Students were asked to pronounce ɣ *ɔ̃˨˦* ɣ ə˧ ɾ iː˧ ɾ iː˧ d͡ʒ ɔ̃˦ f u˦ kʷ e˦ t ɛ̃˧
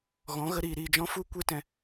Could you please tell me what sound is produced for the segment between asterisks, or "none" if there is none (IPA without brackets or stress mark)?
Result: ɔ̃˨˦